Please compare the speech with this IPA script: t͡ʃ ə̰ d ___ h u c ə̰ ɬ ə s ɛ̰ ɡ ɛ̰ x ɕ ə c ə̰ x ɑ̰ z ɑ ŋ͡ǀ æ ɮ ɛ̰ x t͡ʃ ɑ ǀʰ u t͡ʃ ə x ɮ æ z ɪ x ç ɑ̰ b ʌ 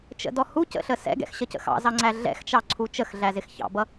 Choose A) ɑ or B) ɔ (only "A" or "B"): B